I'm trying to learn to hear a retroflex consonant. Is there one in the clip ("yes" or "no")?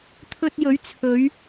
no